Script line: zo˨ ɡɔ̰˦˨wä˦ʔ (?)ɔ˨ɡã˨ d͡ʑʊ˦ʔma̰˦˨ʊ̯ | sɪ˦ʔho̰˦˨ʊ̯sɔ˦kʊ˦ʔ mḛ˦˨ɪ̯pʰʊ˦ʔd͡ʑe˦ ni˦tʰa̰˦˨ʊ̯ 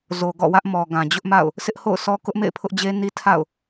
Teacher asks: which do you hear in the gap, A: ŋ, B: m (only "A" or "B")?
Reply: B